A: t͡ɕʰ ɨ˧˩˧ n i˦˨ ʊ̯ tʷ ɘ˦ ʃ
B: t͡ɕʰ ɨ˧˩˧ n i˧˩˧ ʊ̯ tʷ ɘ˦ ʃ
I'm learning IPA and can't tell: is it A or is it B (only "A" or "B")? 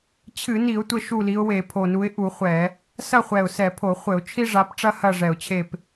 B